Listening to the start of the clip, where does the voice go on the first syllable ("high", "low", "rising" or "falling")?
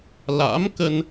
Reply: rising